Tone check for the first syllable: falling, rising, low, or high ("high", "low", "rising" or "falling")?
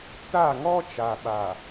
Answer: falling